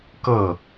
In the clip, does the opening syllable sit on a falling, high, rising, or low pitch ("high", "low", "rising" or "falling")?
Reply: falling